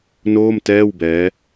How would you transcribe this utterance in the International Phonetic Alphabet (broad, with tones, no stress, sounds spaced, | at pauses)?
n oː˥˩ m t ɛː˥˩ w b ɛː˦˥